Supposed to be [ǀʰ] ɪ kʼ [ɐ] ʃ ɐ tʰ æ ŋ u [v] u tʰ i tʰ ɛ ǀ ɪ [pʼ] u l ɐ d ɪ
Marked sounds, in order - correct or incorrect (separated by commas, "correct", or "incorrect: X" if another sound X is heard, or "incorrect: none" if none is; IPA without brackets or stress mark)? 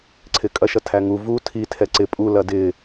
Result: correct, correct, correct, correct